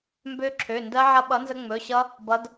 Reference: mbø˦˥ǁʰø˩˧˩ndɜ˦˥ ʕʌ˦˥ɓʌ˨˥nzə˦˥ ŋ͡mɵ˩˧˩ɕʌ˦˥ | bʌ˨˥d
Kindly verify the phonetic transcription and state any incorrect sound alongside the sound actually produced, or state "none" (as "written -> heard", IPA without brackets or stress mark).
none